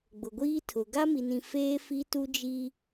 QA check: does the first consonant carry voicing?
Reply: yes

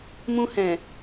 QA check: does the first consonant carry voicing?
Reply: yes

